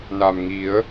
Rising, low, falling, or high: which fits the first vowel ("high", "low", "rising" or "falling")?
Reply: low